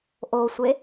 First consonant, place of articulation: glottal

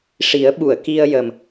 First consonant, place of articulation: retroflex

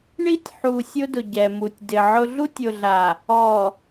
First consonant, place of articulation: retroflex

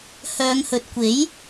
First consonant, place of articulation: glottal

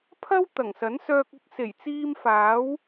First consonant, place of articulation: labial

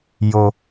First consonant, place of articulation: palatal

